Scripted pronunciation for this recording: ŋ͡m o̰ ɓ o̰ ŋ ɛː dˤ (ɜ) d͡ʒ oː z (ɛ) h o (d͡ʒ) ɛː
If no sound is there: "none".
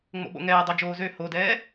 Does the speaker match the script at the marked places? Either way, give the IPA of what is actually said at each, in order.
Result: ɜ, ø, d

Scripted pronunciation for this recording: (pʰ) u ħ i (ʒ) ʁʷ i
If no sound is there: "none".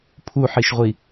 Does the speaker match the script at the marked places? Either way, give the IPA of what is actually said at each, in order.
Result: pʰ, ʃ

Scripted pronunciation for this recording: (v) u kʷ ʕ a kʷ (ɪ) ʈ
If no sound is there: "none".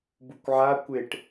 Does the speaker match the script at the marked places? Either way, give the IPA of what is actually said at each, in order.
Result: b, ɪ

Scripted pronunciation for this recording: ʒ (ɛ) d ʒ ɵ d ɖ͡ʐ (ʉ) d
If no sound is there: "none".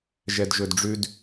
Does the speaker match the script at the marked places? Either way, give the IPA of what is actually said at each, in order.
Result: ɛ, ʉ

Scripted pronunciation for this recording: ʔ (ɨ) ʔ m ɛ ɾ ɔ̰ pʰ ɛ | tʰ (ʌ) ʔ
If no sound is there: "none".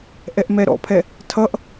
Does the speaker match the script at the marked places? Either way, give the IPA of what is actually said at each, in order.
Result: ɛ, ʌ

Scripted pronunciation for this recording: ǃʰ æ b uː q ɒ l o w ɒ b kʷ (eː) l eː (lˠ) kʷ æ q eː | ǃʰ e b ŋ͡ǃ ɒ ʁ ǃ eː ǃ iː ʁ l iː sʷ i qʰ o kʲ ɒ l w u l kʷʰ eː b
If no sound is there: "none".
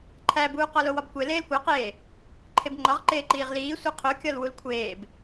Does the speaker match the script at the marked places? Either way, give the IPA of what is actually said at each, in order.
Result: e, l

